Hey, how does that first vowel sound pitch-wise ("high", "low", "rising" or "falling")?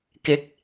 rising